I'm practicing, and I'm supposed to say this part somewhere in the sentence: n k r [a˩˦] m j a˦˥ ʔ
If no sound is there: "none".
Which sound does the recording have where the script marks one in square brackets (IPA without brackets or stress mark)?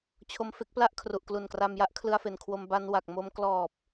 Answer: a˧